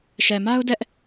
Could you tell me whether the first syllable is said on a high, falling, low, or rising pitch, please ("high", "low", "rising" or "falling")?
low